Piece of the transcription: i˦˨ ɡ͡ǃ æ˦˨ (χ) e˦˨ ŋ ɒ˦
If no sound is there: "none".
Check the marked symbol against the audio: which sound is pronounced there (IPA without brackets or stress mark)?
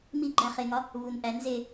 χ